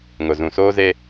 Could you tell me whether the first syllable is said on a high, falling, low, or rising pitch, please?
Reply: low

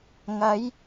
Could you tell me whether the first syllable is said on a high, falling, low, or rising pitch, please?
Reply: rising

